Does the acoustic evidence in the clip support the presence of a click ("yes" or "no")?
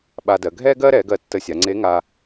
yes